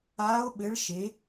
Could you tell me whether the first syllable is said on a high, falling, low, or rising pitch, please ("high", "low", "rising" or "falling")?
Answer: rising